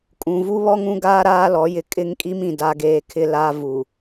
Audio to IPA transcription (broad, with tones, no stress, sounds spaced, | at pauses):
kʼ ũ˨ v u˦ β ɔ˦ ŋ ũ˦ ɡ aː˦ ɾ aː˦ l ɔ˨˦ j ɪ˨ kʼ ɪ˦ ŋ kʼ i˦ m ĩ˨ d a˦ ɡ eː˦ kʰ ɪ˦ l a˦ v u˨